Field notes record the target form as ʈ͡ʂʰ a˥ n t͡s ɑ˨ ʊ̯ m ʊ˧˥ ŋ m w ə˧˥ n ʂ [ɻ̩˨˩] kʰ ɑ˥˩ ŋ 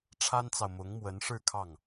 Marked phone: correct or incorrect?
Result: incorrect